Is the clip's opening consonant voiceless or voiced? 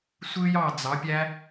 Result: voiceless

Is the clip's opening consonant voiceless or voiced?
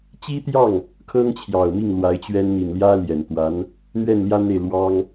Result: voiceless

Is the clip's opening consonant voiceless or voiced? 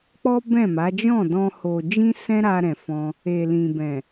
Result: voiceless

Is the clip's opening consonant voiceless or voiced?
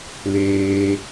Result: voiced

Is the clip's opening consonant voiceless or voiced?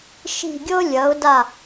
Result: voiceless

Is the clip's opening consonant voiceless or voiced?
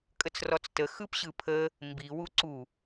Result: voiceless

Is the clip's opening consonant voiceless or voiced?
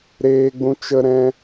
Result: voiced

